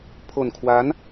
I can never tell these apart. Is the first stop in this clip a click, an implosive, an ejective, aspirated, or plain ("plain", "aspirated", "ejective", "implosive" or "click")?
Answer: aspirated